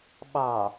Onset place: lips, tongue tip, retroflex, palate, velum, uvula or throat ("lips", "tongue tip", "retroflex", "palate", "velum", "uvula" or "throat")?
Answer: lips